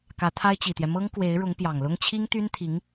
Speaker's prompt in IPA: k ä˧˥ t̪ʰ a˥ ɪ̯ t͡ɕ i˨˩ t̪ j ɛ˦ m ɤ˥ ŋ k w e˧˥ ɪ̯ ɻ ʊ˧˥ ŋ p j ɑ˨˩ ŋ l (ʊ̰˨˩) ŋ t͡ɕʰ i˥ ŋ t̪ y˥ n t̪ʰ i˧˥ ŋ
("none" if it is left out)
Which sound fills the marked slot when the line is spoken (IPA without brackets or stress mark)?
ʊ˥